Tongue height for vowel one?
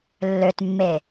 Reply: mid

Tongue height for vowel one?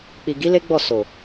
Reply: high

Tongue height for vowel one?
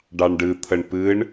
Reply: low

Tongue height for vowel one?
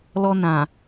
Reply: mid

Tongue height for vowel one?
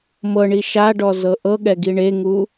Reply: mid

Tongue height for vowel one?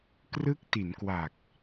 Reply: high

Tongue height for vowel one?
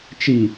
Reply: high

